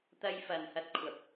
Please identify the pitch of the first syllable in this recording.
high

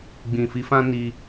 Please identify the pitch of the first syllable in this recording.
low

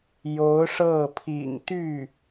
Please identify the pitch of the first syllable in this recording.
rising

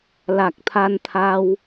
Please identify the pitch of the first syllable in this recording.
low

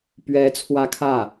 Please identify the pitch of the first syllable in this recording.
rising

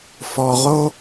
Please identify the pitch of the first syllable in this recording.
low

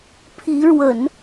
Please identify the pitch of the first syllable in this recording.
rising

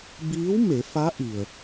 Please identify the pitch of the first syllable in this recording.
rising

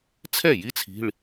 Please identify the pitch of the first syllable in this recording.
falling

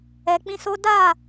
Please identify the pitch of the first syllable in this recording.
low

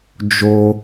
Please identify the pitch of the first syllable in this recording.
low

